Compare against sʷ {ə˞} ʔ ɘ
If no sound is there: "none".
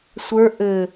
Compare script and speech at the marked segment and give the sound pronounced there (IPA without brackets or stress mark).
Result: ə˞